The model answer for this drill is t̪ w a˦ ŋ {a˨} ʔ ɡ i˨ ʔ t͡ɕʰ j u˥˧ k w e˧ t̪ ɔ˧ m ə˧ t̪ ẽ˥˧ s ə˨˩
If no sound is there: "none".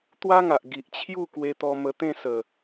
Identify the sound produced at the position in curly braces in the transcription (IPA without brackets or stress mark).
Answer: a˨